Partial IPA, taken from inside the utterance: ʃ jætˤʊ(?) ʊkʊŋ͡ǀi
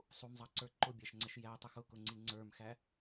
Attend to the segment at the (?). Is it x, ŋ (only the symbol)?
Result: x